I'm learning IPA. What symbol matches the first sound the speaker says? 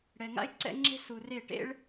ɽ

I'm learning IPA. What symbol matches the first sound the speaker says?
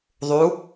ðˤ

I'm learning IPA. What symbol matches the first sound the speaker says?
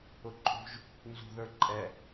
ʊ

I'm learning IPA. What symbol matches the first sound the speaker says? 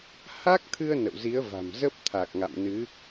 h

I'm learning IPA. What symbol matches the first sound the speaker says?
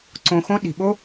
ǀ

